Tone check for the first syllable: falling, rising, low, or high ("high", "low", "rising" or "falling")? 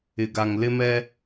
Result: low